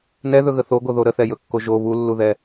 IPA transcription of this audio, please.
n ɛ ð ɵ ɣ ə θ o ɡ o ð o ɾ ə θ ɛ j ɵ kː o ʒ o β u lː u ð ɛ

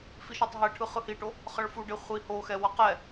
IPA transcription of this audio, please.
f i ʃ a tˤ ɦ ɛ ʈʰ ɯ χ ɯ h i ʈ o | χ ʌ ɭ f u ɖ e χʷ i h o x ɛ w ʌ q ɛ

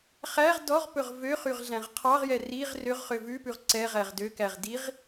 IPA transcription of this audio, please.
χ æ ʁ d ɔ ʁ p ɵ ʁ v ø χ y ʁ ɮ æ̃ ʁ qʰ ɑ ʁ j ɛ r i ʁ r ø ʁ χ ø v ʉ p ʉ ʁ ǀ ɛ ʁ æ ʁ d ø k æ ʁ d i ʁ

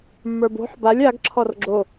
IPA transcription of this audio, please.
mː ə˞ b o̤ ħ b a lʲ a ɡ ǁʰ ɔ r ɡ͡ǁ o

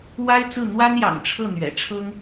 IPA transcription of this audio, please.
w a˥ ɪ̯ t͡s ɹ̩˥˩ n̪ w a˥ n j ɑ̰˨˩ ŋ ʈ͡ʂʰ ɤ˥˩ n̪ ɥ ɛ̰˨˩ ʈ͡ʂʰ ɤ˥ ŋ

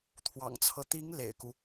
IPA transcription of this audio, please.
t̪ʰ w ɑ̰˨˩ ŋ t͡sʰ ɤ˦ t̪ i˧˥ ŋ l ḛ˨˩ ɪ̯ k u˦

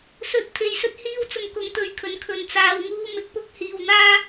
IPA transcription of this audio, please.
s ɵ˧ t̚ t̪ʰ e˧ j s ɵ˥ t̚ h iː˥ w t͡s ʊ˧ ŋ k ʊ˨˧ ŋ t̪ ɵ˧ ɥ kʰ ɵ˨ n kʰ ɵ˨˧ n t͡s aː˨ w ŋ uː˧ m ɪ˨ k̚ p ʊ˧ k̚ h iː˨ w n̪ aː˥

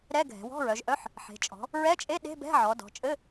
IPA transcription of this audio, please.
ɾ ɛ˧˥˧ ɡʱ ɛ̤˩˧ w ɔ̤˧˥˧ ɹ œ˩˧ ʒ ʔ œ˧˥˧ ħ | ħ e̤˩˧ t͡ʃʼ ɔ̤˩˧ | ɹ ɛ˧˥˧ t͡ʃʼ e˧˥˧ ɗ e̤˧˥˧ b ɛ̤˧˥˧ ʕ ɔ˩˧ d ɔ̤˩˧ t͡ʃʼ ɘ˧˥˧

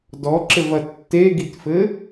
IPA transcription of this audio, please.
d ɔ ǁ ɘ v ɐ tː e ɡ i t f ɘ

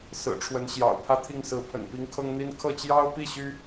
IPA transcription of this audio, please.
s ɹ̩˨˩ ʈ͡ʂʰ w ə˧˥ n ɕ j ɑ̰˨˩ ʊ̯ pʰ ä˥˧ t̪ʰ i˥˩ ŋ s ɹ̩˧˥ pʰ ə̰˨˩ n p i˧˥ ŋ kʰ ɤ˥ ŋ n̪ i˥ n kʰ ɤ˥˩ t͡ɕ j ɑ˥ ʊ̯ p i˥˩ ɕ y˥

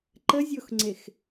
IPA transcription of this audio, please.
ǃ ə zʲ o x ŋ͡ǀ e x

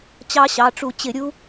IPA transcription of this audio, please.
t͡ɕ ɑ˦˥ ɕ ɑ˩˧˩ ʈ͡ʂ u˧˩˧ t͡ɕ ɪ˧˩˧ ɾʲ u˦˥

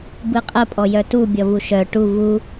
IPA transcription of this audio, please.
b ɯ qʼ ə pʼ ɔ j œ t u bʲ ɔ v u ʃ œ ʈ u v u

